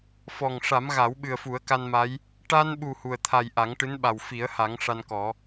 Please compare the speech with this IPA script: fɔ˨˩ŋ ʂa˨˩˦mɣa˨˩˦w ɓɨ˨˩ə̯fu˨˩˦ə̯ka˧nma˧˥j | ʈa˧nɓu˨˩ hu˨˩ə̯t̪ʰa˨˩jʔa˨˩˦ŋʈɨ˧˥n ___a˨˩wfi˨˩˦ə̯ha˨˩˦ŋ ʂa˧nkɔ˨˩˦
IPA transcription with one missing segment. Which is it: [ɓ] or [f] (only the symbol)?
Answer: ɓ